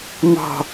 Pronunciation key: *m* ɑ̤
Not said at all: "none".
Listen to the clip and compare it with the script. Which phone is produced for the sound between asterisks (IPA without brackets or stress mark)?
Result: m